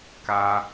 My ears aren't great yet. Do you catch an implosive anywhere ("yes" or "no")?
no